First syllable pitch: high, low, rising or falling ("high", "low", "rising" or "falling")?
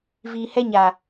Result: low